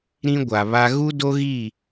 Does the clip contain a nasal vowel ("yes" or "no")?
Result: yes